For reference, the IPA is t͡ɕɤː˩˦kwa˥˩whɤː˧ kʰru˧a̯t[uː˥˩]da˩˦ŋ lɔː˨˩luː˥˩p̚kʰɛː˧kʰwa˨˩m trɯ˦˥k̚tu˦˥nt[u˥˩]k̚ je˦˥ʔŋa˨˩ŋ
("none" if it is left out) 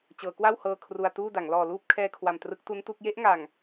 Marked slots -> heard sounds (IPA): uː˥˩, u˥˩

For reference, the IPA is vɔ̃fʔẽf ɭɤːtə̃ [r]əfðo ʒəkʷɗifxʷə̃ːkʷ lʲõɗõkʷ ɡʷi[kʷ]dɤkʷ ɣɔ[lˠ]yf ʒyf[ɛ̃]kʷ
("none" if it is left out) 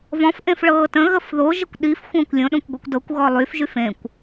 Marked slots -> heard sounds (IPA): ɣ, kʷ, lˠ, ẽ

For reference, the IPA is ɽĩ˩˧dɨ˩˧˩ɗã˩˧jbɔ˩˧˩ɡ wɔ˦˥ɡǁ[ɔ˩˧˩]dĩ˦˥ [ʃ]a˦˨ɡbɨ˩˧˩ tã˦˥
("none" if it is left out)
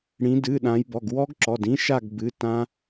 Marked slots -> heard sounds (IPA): ɔ˩˧˩, ʃ

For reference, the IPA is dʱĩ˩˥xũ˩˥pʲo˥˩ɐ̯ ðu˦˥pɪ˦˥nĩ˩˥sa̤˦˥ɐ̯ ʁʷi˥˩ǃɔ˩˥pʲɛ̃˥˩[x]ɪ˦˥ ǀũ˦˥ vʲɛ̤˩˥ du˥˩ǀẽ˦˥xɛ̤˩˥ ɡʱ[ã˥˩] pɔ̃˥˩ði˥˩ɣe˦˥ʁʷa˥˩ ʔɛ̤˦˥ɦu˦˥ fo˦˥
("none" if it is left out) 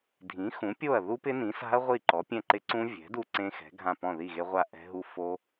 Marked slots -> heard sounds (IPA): ǃ, ã˥˩

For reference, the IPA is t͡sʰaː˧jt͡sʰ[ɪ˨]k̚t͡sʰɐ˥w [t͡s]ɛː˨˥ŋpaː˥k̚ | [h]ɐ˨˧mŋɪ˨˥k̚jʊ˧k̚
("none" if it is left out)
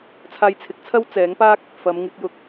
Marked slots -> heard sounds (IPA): ɪ˨˥, t͡s, f

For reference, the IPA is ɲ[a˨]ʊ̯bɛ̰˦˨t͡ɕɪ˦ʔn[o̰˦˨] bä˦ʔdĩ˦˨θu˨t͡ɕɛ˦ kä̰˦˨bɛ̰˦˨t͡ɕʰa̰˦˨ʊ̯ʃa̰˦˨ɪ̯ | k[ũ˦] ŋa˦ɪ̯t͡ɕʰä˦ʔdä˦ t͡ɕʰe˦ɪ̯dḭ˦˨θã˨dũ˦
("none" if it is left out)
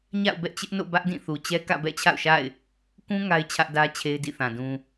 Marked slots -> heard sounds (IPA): a̰˦˨, o̰˦˨, ũ˦

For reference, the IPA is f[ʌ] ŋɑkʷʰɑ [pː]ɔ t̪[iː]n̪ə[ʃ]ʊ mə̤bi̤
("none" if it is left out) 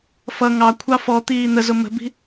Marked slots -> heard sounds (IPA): ʌ, f, iː, z

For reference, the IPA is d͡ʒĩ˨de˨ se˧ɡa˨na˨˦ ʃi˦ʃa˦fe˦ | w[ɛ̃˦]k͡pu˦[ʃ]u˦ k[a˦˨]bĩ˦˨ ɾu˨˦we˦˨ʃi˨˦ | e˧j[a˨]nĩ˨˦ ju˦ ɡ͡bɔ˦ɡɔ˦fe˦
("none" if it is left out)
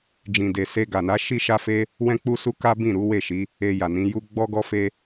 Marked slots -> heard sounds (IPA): ɛ̃˦, s, a˦, a˨

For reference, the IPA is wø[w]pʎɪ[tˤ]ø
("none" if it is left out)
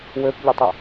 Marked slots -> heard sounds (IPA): none, tˤ

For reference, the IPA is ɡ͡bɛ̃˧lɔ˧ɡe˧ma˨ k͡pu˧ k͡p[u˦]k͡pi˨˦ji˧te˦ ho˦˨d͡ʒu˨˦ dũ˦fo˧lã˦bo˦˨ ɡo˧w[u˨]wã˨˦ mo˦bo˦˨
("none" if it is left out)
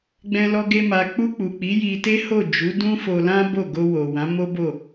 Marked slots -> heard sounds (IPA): u˨, o˨

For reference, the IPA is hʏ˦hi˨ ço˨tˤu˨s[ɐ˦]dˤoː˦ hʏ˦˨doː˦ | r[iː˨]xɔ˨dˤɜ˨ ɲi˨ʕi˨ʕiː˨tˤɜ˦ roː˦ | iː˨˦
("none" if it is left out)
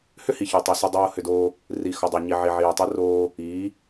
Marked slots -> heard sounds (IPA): ɐ˦, i˨

